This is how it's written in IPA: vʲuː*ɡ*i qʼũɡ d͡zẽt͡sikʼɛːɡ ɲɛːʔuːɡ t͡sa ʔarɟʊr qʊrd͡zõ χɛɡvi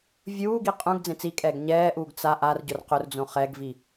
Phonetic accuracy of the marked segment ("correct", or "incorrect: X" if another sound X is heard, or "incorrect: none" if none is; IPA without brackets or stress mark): correct